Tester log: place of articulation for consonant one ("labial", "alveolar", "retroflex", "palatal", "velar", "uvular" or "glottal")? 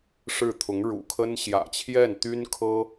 retroflex